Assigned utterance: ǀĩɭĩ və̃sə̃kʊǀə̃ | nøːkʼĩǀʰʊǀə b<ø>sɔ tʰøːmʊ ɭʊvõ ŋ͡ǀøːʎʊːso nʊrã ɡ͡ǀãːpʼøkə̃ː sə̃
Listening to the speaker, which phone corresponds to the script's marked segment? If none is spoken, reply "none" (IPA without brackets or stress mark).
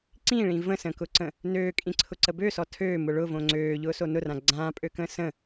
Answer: ø